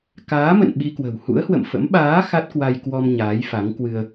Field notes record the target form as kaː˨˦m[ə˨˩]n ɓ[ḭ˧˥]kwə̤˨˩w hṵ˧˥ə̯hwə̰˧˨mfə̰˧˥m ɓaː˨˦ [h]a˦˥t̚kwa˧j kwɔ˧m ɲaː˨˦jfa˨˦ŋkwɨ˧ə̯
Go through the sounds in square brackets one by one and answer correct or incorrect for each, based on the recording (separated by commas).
incorrect, incorrect, incorrect